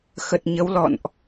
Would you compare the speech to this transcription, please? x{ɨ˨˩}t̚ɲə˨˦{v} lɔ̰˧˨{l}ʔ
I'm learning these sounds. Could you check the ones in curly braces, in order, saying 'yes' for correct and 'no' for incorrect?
no, no, no

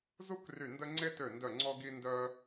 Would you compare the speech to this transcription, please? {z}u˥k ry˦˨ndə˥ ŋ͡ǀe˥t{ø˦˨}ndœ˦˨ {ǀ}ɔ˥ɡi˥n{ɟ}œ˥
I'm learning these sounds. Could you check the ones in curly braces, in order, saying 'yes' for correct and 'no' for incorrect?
yes, yes, no, no

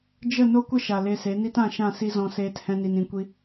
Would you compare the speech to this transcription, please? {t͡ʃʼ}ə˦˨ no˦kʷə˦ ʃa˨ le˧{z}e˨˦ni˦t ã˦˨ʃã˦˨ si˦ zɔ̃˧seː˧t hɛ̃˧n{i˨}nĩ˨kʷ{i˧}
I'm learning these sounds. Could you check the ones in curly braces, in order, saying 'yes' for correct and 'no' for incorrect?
no, no, yes, yes

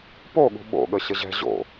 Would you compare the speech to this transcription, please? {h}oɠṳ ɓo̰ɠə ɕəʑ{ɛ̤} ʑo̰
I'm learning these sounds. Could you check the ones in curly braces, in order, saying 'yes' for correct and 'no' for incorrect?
no, yes

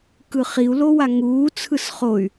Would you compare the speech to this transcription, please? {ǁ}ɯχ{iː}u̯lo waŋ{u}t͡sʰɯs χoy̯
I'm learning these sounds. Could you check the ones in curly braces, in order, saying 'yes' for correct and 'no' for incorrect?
no, no, no

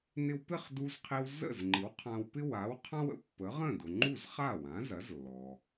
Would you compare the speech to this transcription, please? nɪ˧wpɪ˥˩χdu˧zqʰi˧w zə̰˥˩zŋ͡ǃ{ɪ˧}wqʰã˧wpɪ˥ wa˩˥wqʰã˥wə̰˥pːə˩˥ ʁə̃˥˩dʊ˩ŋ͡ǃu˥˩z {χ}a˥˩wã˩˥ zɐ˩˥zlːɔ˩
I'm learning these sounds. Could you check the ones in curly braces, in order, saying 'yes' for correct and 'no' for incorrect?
no, yes

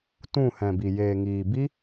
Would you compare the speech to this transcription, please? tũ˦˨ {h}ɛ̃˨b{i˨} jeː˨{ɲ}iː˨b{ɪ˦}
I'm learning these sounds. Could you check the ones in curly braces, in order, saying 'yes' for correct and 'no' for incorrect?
yes, yes, no, no

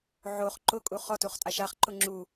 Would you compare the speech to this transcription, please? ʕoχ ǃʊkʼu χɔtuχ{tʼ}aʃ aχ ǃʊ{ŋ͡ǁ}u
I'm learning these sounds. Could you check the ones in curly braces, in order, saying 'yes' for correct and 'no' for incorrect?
yes, yes

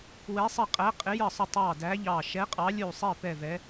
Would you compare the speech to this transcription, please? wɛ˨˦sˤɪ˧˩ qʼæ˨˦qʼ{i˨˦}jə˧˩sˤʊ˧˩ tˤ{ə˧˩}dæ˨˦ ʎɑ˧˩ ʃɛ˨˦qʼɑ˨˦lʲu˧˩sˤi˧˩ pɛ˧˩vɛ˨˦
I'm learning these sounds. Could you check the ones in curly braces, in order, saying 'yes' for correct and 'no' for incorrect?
no, no

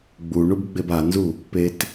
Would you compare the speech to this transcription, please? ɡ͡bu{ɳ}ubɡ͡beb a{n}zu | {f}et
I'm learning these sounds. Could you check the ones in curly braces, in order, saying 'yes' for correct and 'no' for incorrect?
yes, yes, no

